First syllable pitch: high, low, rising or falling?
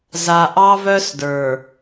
low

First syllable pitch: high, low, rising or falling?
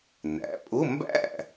rising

